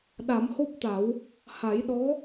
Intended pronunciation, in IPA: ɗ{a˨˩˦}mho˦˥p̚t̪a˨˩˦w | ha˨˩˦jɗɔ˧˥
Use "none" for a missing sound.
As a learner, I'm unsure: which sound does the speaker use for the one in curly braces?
a˨˩˦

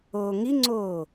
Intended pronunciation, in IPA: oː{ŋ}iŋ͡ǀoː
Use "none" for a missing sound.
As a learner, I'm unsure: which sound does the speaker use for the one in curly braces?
ŋ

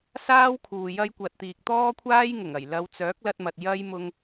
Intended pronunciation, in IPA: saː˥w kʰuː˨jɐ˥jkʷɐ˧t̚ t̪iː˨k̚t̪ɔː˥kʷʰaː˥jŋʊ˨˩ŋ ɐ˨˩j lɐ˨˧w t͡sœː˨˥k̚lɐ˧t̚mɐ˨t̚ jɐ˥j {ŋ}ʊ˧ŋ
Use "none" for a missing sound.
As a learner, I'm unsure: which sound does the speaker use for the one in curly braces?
m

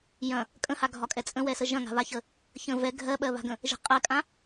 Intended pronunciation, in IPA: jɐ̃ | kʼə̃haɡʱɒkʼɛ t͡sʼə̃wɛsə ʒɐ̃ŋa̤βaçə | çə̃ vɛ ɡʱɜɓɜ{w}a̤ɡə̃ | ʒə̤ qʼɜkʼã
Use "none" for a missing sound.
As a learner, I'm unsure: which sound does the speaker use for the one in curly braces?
β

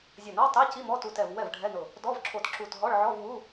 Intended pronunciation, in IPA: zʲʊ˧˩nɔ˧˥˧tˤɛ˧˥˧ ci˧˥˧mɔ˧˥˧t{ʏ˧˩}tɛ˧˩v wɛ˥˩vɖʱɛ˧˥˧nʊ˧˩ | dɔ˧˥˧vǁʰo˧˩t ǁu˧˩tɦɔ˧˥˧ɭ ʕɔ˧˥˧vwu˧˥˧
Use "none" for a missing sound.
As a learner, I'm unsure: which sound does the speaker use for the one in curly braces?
u˧˩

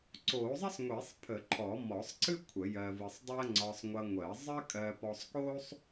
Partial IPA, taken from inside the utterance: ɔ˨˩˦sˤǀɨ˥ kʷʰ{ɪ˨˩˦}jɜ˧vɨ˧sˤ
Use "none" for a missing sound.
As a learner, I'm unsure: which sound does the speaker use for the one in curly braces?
ə˨˩˦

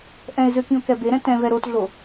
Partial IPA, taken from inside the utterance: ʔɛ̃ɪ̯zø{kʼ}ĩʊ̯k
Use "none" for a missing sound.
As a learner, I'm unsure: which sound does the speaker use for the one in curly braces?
k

